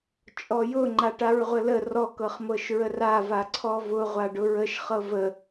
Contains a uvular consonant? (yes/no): yes